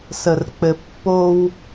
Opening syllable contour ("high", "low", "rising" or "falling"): low